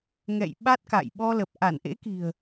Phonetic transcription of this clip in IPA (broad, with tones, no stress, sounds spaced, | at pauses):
ŋ ɛ̰˧˨ j ɓ a˦˥ t̚ k a̰˧˨ j ɓ ɔ˧ l ə˨˩ p̚ ʔ a˧˩ n ʔ ḛ˧˥ k i̤˨˩ ə̯